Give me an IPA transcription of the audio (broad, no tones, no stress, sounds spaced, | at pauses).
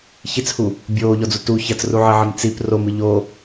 ç i t͡s h u | bʲ oː ʎ ɔ d͡z u t u ç ɐ t͡s r u ʕ ɘ ʕ ɘ m t͡s i p r o m ɨ ʎ o